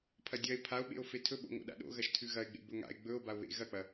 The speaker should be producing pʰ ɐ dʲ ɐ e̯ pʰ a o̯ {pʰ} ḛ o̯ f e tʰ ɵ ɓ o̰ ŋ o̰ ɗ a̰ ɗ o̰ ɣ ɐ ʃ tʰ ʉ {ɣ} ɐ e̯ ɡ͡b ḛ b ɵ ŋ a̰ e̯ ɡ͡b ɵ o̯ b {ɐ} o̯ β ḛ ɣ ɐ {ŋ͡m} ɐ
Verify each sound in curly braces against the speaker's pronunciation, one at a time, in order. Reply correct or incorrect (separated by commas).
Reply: incorrect, correct, incorrect, incorrect